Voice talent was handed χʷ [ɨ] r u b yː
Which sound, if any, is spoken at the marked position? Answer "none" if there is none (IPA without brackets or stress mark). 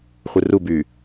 ɨ